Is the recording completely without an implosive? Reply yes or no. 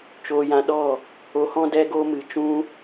no